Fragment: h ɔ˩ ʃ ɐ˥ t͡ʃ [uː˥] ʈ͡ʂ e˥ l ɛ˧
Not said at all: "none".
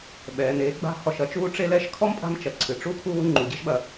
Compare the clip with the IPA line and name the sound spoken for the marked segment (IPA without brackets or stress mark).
uː˥